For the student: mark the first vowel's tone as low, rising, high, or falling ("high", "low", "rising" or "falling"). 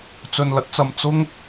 low